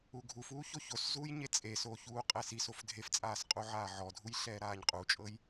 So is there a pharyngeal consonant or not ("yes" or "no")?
yes